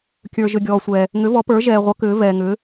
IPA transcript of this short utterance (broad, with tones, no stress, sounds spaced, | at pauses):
kʲ ə˞˧ ʒ ʏ˧ ɡʲ ɔː˧ sʷ ɛː˧ | ŋ ʏ˧˥ v ɔ˧˥ p ə˞˧˥ ʒ ɛː˧ ʁʷ ʌ˧˥ k ʏː˧˥ v ɛː˧ ŋ ʏː˧˥